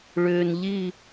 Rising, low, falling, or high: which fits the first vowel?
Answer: low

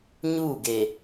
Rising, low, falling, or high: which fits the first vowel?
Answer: falling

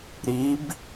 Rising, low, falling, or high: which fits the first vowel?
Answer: rising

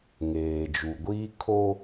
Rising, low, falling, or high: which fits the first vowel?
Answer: low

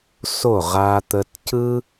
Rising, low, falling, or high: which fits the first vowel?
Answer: falling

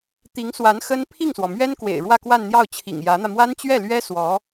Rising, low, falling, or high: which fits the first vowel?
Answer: rising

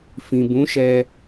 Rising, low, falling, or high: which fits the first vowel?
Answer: low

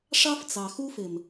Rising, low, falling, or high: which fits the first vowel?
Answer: high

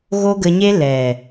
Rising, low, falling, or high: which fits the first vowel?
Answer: high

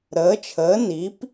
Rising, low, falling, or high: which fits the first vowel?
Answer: rising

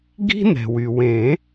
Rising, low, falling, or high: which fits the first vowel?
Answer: high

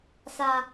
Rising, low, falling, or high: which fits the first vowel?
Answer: low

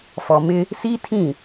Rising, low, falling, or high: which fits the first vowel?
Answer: low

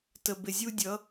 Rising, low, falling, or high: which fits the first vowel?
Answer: low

